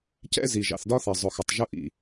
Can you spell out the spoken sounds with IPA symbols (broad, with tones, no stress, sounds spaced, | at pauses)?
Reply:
c ɛ̰˦ z i˨ ʒ ɑ̰˨ θ d ɒ˦ θ ɜ˨ zˤ ʊ˨ x ʊ˨ tˤ ʒ ʊ˦ ʔ ḭ˨